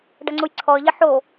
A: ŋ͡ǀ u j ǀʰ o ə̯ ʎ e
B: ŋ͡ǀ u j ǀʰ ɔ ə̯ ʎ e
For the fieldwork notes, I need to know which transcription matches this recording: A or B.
B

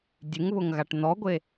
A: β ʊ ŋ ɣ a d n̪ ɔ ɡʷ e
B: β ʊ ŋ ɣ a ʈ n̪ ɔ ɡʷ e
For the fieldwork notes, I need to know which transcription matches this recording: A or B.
B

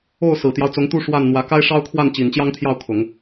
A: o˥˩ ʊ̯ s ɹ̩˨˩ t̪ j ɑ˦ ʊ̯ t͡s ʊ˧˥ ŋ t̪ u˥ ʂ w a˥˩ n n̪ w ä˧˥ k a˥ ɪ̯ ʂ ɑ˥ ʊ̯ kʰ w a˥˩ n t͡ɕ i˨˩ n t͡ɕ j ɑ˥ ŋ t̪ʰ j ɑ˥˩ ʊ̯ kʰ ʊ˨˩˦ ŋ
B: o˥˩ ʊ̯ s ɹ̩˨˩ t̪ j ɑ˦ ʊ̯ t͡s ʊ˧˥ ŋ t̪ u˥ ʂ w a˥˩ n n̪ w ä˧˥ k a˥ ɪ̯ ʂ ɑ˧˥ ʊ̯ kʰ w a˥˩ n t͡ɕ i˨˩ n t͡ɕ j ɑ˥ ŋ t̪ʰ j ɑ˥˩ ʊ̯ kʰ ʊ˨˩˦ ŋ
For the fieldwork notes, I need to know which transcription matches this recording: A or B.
A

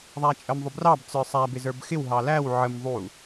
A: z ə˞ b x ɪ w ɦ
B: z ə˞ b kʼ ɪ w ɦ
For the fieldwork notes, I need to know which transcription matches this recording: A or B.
A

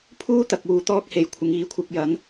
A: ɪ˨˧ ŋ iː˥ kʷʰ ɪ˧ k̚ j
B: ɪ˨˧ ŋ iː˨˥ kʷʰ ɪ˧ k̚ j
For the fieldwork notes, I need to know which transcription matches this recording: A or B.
B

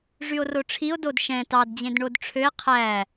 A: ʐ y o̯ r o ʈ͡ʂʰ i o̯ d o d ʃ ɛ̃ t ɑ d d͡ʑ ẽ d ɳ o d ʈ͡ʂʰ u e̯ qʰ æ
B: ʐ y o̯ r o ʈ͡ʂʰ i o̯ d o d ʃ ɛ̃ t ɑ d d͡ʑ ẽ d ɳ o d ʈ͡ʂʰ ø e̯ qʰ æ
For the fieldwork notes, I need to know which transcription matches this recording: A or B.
B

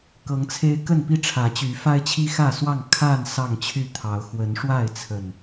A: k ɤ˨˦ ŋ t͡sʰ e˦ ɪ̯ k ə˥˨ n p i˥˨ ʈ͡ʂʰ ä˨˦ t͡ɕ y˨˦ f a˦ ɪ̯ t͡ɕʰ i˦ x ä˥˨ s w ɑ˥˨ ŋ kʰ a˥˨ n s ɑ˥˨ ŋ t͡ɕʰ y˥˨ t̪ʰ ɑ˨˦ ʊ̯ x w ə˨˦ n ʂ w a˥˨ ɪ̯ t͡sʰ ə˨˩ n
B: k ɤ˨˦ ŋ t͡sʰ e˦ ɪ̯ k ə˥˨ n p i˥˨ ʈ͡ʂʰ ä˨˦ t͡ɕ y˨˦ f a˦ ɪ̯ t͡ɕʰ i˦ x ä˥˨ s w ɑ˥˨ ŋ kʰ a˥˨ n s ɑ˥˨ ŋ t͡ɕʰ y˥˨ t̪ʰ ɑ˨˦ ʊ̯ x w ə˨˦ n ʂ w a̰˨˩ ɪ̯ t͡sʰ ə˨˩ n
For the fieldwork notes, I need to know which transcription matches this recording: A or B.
A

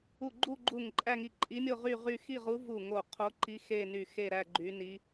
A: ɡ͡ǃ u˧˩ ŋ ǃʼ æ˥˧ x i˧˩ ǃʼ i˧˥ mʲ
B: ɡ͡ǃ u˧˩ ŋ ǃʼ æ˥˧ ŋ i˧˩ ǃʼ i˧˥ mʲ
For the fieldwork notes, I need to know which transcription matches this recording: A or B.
B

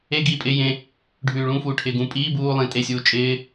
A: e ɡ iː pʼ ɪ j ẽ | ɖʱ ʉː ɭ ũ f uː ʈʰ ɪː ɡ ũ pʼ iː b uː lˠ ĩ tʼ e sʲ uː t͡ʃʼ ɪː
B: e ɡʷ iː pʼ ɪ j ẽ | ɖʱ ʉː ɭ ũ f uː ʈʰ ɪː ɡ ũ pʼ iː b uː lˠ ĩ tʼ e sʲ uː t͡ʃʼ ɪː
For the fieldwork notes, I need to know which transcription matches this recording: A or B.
A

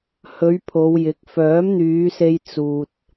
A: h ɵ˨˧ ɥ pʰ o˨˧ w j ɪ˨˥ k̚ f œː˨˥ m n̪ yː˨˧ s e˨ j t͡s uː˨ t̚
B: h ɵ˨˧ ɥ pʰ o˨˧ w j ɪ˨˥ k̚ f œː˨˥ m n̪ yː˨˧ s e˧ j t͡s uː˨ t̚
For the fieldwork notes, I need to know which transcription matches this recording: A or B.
B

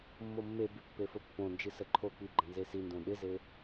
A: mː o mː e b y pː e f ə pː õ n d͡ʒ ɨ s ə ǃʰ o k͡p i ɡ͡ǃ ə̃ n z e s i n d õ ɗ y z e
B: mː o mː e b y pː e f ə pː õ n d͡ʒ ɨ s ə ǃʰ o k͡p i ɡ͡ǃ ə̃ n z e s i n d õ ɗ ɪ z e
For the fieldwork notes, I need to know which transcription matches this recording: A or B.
B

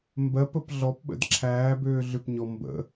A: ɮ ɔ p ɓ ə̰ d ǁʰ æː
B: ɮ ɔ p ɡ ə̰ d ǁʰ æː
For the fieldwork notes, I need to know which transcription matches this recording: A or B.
A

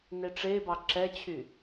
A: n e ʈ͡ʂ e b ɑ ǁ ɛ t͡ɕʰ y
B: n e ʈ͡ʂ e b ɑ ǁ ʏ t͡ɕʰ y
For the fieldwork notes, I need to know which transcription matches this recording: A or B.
A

